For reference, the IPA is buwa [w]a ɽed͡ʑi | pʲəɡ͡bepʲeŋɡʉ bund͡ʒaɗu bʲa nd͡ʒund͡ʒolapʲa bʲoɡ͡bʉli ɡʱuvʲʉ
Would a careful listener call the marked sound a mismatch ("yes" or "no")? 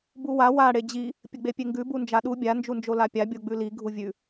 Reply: no